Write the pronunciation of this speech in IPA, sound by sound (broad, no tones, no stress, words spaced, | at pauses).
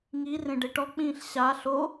ŋi rẽɖeʈɔk͡pĩːɬ ɕa ɬo